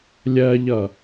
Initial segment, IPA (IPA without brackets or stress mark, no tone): lʲ